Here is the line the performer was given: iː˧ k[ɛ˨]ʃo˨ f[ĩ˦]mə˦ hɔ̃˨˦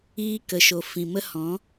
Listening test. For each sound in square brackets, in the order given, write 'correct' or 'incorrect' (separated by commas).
incorrect, incorrect